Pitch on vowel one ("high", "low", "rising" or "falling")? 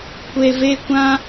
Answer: low